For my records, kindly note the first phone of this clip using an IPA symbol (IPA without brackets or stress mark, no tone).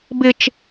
b